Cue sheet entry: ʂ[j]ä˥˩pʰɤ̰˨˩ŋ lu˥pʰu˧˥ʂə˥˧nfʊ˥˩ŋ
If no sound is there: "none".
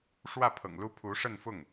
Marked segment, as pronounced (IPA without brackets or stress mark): w